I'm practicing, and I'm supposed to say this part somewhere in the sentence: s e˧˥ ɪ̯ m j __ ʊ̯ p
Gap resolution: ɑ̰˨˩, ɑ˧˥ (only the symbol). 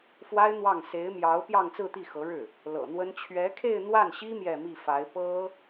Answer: ɑ˧˥